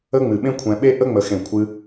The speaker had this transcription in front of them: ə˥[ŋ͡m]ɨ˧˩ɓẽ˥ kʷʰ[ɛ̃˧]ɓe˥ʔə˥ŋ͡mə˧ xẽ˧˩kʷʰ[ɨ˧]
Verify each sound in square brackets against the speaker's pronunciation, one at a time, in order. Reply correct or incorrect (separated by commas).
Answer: correct, correct, correct